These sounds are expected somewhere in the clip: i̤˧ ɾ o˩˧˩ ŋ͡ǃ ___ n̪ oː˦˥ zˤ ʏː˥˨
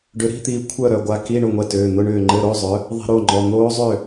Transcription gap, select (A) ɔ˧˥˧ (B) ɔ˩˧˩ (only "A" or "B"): B